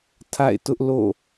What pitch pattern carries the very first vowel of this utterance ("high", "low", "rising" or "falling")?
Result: falling